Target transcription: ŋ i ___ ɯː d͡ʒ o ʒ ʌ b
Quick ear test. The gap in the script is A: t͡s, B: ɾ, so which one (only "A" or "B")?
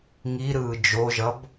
B